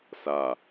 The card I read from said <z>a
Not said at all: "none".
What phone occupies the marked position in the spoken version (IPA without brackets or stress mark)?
s